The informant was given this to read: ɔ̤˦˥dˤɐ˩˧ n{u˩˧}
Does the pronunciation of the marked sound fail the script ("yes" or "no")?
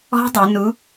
no